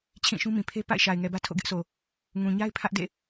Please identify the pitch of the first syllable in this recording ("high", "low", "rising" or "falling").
falling